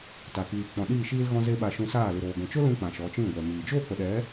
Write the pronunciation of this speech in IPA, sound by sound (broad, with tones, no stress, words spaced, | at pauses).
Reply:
ta˨kiː˨ k͡pɔ̃˨ɗiː˦˨ʃiː˦l ɣɔ̃˧ze˧ ɓa˧ʃũ˧saː˦˨ lɨ˨ɾoː˨ ɡʷɛ̃˨t͡ʃo˦ lũ˦k͡pã˨ ʃɔ˨˦t͡ʃĩ˦˨ɡʷɛ˨miː˨ d͡ʒoː˦˨k͡pə˨ɗɛ˨˦